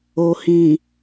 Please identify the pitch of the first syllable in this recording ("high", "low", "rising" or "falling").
low